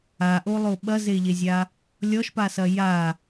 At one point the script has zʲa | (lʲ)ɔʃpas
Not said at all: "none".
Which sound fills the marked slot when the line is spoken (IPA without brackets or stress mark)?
lʲ